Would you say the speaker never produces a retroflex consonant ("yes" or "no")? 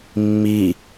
yes